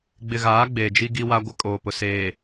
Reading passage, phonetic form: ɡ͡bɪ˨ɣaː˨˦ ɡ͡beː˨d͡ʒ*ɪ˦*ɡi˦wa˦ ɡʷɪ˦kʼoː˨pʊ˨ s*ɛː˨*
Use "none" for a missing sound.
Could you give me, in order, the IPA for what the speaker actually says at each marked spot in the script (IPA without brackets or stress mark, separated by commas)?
i˦, eː˨